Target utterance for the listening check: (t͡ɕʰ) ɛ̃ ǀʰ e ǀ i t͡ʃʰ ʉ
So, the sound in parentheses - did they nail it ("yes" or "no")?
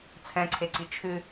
no